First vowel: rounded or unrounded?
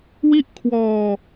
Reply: unrounded